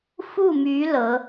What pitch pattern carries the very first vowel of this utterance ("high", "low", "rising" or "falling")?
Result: falling